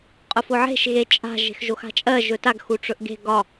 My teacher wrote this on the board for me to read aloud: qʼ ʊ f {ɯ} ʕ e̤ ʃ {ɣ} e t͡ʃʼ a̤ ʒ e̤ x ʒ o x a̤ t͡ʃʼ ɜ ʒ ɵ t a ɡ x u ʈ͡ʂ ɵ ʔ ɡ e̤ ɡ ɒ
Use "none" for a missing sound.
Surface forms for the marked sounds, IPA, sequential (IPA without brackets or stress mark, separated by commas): ʊ, ɣ